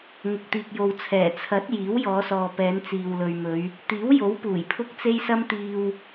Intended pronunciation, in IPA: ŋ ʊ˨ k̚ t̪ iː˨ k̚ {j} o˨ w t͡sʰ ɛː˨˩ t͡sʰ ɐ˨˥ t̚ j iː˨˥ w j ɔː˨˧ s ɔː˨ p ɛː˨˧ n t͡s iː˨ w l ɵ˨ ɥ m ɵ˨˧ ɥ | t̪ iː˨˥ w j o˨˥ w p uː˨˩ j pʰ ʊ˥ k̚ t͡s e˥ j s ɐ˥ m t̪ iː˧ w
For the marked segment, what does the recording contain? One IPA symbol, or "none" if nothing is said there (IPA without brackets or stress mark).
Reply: j